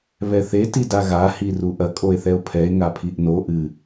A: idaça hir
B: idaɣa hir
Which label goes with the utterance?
B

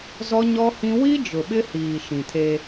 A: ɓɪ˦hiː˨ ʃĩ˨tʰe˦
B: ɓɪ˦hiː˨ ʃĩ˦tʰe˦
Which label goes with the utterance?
A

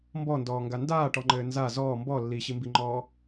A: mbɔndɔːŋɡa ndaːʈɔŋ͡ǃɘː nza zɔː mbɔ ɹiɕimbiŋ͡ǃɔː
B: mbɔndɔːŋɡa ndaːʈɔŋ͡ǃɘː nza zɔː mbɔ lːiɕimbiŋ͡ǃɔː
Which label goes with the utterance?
B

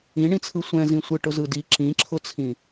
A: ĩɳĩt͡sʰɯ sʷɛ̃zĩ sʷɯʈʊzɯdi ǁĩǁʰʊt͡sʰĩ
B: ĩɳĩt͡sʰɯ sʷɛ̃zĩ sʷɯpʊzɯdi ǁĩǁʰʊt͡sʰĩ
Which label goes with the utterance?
A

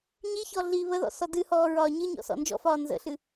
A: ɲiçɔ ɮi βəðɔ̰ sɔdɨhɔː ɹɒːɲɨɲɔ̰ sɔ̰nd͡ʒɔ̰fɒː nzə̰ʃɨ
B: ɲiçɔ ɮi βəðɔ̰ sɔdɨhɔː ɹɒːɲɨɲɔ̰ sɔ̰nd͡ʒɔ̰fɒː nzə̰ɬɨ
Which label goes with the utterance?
B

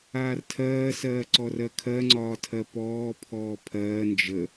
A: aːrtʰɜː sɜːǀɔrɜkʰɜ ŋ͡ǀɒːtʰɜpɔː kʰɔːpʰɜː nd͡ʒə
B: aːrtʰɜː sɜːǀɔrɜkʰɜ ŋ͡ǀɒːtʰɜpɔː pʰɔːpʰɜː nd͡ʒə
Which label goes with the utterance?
B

